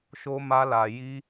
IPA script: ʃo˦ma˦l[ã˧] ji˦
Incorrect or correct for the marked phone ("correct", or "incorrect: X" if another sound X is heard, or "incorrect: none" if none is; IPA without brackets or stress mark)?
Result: incorrect: a˧